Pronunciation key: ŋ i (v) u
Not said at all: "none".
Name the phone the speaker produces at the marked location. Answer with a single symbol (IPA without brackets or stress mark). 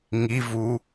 v